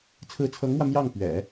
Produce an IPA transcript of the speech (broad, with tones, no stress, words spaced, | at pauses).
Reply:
t͡sʰɹ̩˧˥t͡sʰɤ˧˥ŋmwä˧ mjɑ˥˩ŋpɥɛ̰˨˩˦